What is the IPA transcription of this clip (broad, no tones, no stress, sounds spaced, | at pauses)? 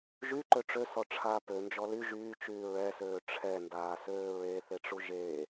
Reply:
ʒ y ǃ ø ʈ͡ʂ ø s ɔ ʈ͡ʂʰ aː p ø n d͡ʒ ɔ l y ʒ yː t͡ʃ yː ɹ ɛ s øː ʈ͡ʂʰ ɛ n d aː s øː ɹ e θ e ʈ͡ʂ u ʒ e